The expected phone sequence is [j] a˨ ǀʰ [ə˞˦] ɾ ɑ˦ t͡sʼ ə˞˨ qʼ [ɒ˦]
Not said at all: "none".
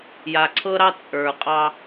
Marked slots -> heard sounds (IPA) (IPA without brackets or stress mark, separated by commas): j, ɤ˦, ɑ˦